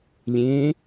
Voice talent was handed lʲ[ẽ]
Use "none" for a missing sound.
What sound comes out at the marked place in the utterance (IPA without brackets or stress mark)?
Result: ẽ